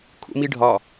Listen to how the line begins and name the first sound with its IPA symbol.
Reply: kʰ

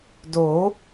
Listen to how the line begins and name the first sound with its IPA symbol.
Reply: d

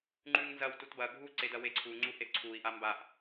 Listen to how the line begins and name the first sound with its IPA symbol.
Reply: ŋ͡ǃ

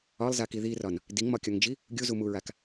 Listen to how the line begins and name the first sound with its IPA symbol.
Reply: ɒ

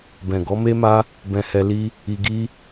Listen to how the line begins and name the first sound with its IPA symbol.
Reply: b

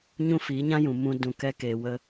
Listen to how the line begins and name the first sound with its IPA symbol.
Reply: ɲ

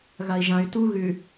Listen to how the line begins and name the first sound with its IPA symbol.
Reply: ɣ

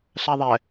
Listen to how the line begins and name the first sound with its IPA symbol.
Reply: ɬ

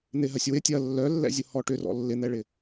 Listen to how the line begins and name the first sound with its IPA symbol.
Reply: n̪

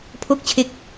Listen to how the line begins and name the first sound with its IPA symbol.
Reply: pʰ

